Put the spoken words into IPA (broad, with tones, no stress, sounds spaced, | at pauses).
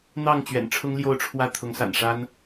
n̪ ɑ˥˨ ŋ t͡ɕ ɥ ɛ̰˨˩ n ʈ͡ʂʰ ʊ˦ ŋ l j o˥˨ ʊ̯ ʈ͡ʂʰ w ä˥˨ t̪ʰ ʊ˨˦ ŋ s a̰˨˩ n ʂ a˦ n